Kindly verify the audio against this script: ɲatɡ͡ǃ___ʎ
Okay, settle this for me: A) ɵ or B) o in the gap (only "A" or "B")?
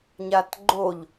B